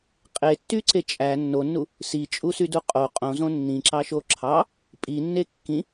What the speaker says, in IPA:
qʼ e tː y ǀ e t͡ʃʼ æ nː o nː u | s i t͡ʃʼ u s y d u qʼ o qʼ õ z õ nː ĩ ǁ ɑ ʃ o ǁʰ ɑ | pʼ i nː e kː ĩ

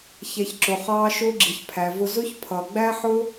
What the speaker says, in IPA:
ç ɛ˨ ç ǁ ʊ˨ χ ɑː˧ ʃ ʊː˧ ɡ͡ǁ i˨ ç pʰ æ˨ v ʊ˧ z ʊ˦ ç pʰ ʌ˧ ɡ͡b æ˦ ħ ʊ˦

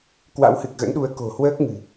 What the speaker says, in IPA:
k w a̰˧˥ w h ɨ˨˩ k̚ ɣ ə̰˧˥ n ɗ u˨˦ ə̯ k o̤˨˩ h w əː˦˥ k̚ ŋ ɨ̤˨˩

